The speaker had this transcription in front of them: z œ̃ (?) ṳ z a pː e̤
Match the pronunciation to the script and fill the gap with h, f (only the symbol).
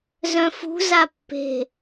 f